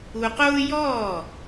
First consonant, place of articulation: uvular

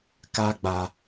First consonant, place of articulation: velar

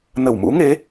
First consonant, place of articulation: alveolar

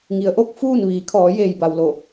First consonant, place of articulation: velar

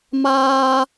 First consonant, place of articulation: labial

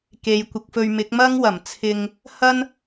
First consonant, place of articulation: velar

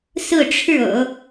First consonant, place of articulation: alveolar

